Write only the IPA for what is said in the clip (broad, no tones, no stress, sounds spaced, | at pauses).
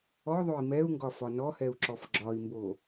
ɔ ðˤ o i̯ m ɛ u̯ ŋ ɡ ɒ f ɒ n ɔ h ɛ u̯ ǁ ɔ f ɡ͡ǁ ɒ i̯ m b o